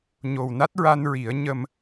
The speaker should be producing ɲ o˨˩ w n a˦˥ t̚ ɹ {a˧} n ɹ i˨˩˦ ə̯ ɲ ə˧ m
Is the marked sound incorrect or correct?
correct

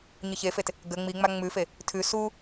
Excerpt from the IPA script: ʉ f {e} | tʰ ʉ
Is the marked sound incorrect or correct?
correct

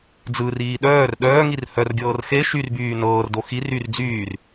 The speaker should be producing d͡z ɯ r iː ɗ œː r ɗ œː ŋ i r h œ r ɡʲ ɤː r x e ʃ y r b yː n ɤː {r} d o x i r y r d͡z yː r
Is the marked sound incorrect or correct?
correct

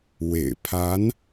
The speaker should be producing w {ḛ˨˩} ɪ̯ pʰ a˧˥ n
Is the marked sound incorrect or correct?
correct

